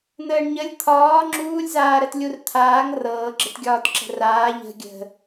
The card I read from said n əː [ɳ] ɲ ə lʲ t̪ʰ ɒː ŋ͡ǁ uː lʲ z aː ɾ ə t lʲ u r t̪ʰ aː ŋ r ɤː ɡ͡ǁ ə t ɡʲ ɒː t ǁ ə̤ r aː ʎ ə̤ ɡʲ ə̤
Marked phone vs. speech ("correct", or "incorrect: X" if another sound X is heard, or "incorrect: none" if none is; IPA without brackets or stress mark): correct